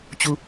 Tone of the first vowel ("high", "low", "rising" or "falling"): low